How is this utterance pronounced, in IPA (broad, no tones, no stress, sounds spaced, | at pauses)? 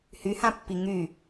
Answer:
h y h ã pː i ŋ y